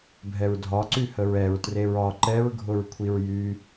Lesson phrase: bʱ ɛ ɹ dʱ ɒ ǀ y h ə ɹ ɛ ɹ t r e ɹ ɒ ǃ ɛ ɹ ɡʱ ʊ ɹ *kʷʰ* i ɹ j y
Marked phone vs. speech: correct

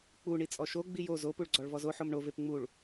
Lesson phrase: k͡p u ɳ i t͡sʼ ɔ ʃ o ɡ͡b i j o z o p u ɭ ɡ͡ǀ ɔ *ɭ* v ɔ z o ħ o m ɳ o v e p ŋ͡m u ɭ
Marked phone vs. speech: correct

